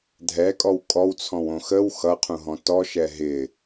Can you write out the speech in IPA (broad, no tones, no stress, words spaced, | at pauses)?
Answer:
dʱɛkʼɔw kʼɔwt͡sʰɔ̃w õxəw xʌqʰũɦɔ̃ tɔʃɛ ɦɪ